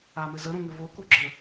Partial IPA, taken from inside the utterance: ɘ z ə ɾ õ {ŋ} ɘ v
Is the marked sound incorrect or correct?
correct